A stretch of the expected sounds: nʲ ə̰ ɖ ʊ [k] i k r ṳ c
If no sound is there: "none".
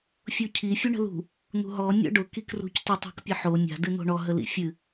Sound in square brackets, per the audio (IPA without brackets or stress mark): k